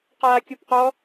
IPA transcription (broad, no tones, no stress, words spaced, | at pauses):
qaːkʲopqɔ